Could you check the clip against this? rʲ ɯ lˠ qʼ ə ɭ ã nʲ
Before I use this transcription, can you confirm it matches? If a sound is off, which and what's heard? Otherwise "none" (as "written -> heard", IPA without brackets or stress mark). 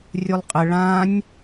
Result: ɯ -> u